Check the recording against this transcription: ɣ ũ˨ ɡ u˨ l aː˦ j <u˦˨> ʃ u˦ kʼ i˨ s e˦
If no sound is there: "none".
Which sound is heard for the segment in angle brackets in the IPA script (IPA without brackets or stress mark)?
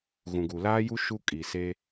u˦